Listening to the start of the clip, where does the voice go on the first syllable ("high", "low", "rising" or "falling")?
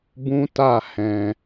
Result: high